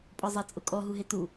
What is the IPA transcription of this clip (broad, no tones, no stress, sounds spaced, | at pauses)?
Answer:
pʼ ɔ zˤ a t͡sʼ ʊ kʼ ɔ ɦ u ɦ e t u